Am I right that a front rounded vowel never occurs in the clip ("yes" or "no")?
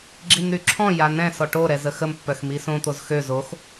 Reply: no